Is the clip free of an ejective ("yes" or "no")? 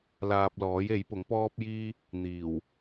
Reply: yes